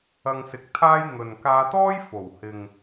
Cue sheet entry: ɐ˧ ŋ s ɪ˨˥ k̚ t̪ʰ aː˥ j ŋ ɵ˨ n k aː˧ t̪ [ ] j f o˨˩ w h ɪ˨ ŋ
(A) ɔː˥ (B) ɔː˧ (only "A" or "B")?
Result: A